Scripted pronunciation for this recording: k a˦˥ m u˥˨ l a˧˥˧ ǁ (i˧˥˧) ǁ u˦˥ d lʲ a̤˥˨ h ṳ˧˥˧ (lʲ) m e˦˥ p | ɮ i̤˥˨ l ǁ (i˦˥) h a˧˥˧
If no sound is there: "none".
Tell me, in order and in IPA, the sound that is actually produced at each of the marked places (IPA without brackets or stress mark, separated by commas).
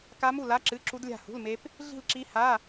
ɨ˧˥˧, l, i˦˥